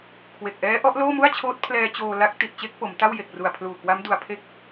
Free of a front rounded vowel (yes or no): yes